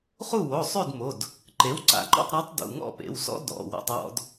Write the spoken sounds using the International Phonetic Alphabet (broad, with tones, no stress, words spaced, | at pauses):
χu˥˨wo˩˧˩ sˤʉ˥˨dmo˩˧˩d | ǃe˩˥wǀa̰˧˩˧ǃɔ̰˥˨tˤ ɾa˧˥tˤ dṵ˩˧˩ŋɔ̰˥˨pḛ˩˧˩wsɔ̰˥ dɔ̰˩˧˩ wɔ̰˥˨tˤwɔ̰˥d